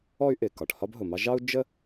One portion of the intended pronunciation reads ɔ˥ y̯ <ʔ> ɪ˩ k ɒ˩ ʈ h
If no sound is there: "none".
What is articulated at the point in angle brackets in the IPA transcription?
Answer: ʔ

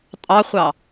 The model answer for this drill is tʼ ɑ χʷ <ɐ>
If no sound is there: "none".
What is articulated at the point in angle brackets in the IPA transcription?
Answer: ɑ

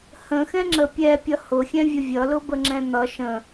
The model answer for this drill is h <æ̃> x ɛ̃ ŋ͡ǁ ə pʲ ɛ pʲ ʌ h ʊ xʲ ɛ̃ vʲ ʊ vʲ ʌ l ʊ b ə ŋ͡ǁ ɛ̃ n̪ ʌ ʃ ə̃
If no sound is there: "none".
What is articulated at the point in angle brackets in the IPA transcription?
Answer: ə̃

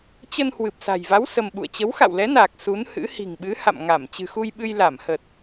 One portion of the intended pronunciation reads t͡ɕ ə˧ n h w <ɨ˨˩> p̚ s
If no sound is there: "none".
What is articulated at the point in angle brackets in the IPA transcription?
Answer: ɨ˨˩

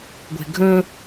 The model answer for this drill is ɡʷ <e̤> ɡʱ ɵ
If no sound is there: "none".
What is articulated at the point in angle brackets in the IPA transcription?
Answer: e̤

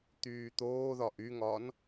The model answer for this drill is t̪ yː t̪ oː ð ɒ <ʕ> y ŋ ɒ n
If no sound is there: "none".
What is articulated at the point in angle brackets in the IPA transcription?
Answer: ʔ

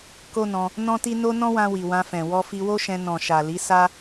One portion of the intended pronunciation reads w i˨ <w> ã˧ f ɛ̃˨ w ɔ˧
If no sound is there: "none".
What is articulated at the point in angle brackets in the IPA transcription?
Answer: w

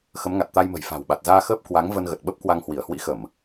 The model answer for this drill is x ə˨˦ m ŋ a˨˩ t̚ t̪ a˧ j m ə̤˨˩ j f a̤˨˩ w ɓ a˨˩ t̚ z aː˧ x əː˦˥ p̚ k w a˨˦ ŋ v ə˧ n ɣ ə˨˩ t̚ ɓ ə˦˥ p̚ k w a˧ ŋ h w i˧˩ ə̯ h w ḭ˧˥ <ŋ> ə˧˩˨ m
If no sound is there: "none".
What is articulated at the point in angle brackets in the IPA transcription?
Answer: x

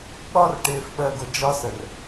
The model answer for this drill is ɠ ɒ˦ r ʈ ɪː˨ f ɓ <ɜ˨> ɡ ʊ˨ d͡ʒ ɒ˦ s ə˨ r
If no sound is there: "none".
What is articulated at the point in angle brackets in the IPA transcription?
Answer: ɜ˨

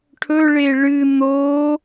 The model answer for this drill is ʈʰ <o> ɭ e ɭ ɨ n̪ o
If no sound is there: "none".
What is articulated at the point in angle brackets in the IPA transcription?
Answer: ɵ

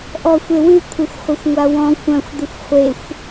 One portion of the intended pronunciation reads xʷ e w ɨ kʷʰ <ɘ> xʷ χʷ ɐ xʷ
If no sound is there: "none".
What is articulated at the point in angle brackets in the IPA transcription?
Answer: ɘ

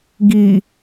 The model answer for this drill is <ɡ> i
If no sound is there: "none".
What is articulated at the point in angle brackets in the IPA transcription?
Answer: ɡ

